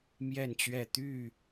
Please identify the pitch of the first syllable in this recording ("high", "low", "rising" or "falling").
falling